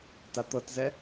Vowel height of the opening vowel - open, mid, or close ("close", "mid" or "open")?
open